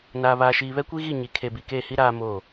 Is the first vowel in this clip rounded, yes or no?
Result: no